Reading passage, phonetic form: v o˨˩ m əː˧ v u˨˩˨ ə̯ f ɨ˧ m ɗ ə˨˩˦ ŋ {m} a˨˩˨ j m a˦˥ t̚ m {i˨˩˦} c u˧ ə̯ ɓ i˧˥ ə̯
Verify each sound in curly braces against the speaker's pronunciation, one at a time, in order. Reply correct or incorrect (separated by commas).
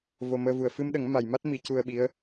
correct, correct